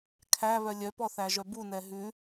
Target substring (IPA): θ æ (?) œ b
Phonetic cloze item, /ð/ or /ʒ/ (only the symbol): ʒ